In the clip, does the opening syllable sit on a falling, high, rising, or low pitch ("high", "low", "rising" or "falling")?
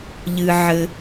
low